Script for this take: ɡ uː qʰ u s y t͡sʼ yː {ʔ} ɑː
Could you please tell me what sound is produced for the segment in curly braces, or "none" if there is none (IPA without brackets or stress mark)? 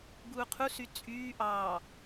ʔ